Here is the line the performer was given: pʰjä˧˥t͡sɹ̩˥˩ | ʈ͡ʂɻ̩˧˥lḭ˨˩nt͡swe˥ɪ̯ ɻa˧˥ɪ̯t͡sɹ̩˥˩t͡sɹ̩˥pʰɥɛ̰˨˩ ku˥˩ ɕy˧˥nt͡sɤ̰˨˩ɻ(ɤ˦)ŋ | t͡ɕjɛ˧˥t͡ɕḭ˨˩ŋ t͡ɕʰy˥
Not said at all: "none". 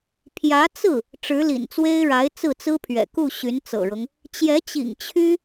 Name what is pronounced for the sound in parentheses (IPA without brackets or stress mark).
ɤ˦